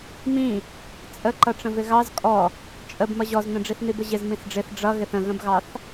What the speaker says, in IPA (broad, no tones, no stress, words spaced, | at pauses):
mĩ | t͡sʼəǃʌʈ͡ʂə̃ vɪɣɑz kʼɔ | t͡ʃʼəb mʌʑɔznə̃ ɖ͡ʐiθnibəʑɪz mĩsɖ͡ʐɪθ ɖ͡ʐʌɣɪθ ə̃ɣə̃bɣɑθ